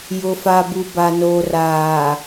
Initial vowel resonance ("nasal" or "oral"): oral